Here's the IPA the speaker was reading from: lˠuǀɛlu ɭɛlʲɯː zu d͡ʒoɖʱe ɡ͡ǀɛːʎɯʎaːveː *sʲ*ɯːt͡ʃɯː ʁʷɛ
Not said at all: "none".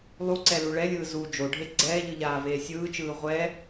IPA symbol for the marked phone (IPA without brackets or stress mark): sʲ